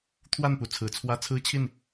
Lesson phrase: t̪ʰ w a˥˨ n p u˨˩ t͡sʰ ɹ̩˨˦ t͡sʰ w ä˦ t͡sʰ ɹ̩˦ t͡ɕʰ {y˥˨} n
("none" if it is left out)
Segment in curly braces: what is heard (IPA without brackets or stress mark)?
i˥˨